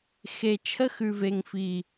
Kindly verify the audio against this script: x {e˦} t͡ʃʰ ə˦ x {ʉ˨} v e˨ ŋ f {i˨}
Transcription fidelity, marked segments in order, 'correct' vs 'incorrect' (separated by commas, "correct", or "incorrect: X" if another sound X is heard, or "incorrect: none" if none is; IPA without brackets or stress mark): incorrect: e˨, correct, correct